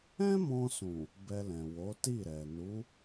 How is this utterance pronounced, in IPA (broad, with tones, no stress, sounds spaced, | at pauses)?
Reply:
ɛ̃˦ m ɔ̃˧ s ũ˨ | b ɛ˧ l ɛ̃˨ w o˨˦ t i˦˨ ɾ ɛ˨ n u˨˦